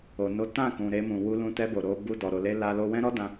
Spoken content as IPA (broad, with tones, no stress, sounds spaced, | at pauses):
o˨ n o˨˦ t ã˦˨ k ũ˧ ɾ e˦ m ũ˧ w u˧ l ũ˧ t ɛ˧ b o˨ ɾ o˧ b u˧ d ɔ˨ ɾ o˨ l e˧ l a˧ l o˧ w ɛ̃˦ ɾ ɔ˦ d ã˧